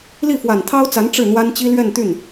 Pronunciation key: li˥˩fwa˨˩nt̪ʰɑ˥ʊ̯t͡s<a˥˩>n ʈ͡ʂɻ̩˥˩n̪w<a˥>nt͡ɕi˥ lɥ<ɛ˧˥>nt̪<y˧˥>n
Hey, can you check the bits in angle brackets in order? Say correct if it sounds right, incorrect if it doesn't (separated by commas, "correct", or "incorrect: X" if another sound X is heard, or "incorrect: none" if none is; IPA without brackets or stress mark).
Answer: incorrect: a˧˥, correct, incorrect: ɛ˥˧, incorrect: y˥˩